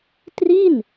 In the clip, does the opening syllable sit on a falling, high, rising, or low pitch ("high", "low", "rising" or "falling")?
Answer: falling